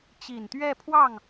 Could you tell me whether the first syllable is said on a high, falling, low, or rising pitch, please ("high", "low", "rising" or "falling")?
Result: low